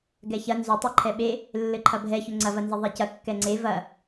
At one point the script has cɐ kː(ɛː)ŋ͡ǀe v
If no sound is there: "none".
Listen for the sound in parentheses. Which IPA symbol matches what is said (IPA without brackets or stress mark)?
ɛ